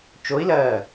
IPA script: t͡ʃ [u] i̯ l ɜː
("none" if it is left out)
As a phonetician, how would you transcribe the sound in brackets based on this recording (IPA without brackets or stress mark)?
o